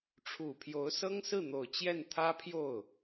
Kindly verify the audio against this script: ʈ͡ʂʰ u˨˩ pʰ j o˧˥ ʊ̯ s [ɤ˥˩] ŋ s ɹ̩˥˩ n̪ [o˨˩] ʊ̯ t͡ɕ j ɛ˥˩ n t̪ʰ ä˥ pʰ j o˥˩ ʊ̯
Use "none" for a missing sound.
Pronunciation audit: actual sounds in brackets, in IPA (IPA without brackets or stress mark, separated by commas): ɤ˥, o˨˩